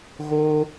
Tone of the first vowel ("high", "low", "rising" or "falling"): high